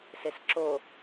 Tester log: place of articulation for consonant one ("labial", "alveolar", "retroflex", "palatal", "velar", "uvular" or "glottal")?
alveolar